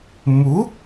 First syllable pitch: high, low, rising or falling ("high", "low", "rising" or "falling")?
rising